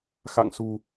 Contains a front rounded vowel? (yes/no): no